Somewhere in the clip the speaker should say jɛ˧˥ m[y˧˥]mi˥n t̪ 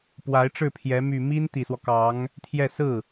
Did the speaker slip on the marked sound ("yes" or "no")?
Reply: yes